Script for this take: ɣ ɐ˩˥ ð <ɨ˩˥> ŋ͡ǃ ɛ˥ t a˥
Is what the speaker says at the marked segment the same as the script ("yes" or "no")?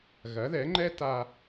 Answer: no